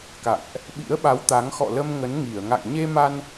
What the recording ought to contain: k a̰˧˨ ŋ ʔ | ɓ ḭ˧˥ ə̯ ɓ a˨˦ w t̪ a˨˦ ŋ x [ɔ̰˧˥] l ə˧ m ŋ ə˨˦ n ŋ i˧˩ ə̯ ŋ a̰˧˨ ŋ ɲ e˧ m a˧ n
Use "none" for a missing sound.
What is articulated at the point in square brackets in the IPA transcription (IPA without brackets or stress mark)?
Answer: ɔ̰˧˨